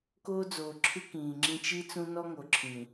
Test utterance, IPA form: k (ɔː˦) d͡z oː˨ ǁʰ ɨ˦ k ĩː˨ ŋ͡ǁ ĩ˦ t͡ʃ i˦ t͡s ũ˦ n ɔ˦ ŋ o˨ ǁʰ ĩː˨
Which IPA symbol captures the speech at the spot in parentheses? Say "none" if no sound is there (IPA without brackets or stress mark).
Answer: oː˦